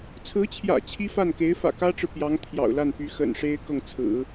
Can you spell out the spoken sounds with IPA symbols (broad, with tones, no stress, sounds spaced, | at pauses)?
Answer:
t͡sʰ ɹ̩˧˥ t͡ɕʰ j ä̰˨˩ t͡ɕʰ i˥ f a˥˩ n k e˧˥ ɪ̯ f ä̰˨˩ k ä˥ ʈ͡ʂ ɻ̩˨ p j ɑ˧˥ ŋ t̪ʰ j ɑ̰˨˩ ʊ̯ l a˥˩ n p y˧˥ x ə̰˨˩ n ʂ e˥ ɪ̯ k ɤ˥˩ ŋ t͡sʰ ɹ̩˨˩˦